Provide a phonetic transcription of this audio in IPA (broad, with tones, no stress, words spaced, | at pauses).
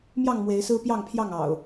mjɑ˥˨ŋmwe˨˦ɪ̯sɹ̩˦ pjɑ˥˨ŋpʰjɑ˥˨ŋ ɑ̰˨˩ʊ̯